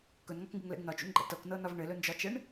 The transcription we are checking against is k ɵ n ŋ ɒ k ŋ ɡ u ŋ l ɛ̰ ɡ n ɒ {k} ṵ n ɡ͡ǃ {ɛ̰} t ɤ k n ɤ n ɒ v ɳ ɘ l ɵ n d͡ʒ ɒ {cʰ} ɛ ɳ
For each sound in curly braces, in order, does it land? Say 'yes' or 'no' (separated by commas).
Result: no, yes, no